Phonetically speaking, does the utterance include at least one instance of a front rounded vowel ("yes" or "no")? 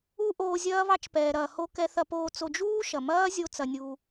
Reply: no